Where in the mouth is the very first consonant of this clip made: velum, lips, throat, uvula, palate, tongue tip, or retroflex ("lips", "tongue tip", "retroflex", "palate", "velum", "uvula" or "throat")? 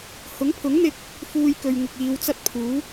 throat